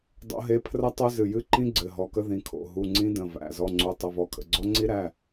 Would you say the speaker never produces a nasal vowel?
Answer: no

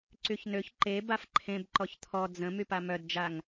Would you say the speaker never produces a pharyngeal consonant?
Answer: yes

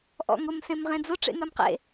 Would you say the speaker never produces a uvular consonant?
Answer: no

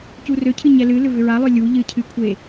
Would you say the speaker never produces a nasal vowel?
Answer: yes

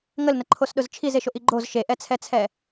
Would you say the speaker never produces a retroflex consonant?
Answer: yes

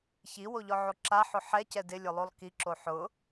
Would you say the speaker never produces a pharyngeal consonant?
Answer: no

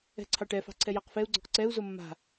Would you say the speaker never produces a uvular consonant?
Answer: no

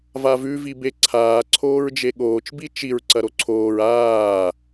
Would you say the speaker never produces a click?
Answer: no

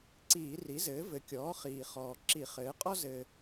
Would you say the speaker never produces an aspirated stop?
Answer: yes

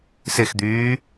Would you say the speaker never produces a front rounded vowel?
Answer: no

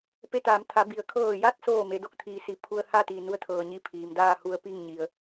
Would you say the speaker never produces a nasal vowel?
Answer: yes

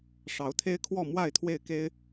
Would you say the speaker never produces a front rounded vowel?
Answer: yes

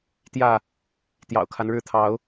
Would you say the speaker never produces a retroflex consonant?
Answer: no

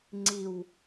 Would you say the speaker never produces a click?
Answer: no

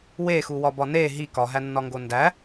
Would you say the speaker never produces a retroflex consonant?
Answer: yes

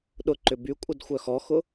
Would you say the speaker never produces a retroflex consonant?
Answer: yes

